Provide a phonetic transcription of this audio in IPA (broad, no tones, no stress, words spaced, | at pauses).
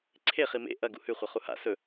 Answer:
ǀʰe χimḛ ʔɐ ɡṵhʉχʷɐ χuha̰ sɵ